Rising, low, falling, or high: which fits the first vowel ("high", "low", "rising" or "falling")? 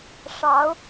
rising